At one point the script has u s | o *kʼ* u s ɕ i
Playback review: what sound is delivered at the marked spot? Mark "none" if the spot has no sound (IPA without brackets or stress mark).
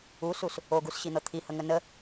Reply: ɡ